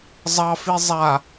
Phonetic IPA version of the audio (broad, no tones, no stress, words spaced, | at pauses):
zˤɑfi zˤa